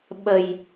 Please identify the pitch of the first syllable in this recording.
low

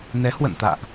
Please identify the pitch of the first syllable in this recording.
rising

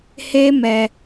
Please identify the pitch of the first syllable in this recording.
high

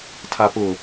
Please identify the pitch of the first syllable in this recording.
low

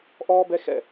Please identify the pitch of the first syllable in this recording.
high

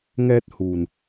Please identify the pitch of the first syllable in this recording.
high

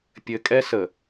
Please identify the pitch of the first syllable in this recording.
low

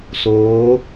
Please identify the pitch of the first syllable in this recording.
rising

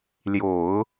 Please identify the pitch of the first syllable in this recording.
low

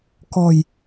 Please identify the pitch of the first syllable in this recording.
low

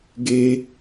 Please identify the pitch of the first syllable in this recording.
high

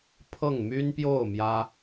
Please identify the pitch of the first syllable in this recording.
falling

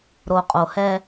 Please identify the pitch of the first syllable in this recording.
low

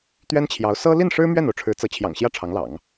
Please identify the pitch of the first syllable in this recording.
high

